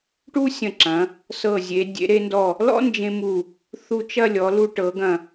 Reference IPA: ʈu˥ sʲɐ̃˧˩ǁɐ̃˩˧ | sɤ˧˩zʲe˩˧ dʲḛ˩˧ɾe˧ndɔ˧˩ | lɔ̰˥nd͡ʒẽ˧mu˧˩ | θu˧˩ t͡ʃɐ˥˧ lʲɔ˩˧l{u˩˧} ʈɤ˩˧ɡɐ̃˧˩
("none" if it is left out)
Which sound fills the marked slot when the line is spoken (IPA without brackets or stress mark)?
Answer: u˧